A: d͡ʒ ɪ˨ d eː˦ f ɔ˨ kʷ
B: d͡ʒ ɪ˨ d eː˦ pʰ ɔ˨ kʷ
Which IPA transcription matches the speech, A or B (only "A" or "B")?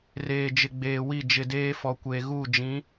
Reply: A